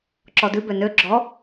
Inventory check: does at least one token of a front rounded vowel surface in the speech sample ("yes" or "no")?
yes